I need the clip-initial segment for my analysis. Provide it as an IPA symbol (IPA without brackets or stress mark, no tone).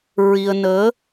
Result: ɹ